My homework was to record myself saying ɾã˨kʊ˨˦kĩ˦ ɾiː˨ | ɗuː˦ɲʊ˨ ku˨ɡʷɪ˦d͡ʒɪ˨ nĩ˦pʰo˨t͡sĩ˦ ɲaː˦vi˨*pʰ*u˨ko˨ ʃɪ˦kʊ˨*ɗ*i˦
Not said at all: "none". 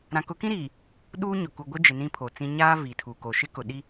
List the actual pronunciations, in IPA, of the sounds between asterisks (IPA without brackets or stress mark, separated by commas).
tʰ, ɗ